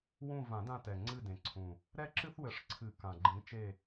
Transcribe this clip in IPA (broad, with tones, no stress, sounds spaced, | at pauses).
w ũ˦˨ v ã˨˩˦ d ã˦˨ t ɛ˨˩ ŋ͡ǀ ɨ˦˨ d ẽ˨˩ ǀʰ ũ˨˩ | ɾ ɛ˦ ǁ ɨ˦ θ w ɘ˨˩˦ ʂ ǀʰ ɨ˨˩˦ k ã˨˩ ɡ͡ǃ ĩ˨˥ t͡ʃ e˦˨